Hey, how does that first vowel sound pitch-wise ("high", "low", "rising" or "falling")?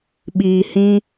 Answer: low